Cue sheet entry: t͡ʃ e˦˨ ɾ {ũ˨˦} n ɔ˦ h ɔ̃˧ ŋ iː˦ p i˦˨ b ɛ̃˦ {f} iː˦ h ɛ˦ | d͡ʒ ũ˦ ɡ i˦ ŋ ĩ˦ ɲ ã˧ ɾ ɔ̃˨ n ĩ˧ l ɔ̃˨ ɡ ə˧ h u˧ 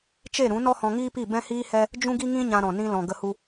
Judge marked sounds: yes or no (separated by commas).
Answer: yes, no